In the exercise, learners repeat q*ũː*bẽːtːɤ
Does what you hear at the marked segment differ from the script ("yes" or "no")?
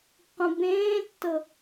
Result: yes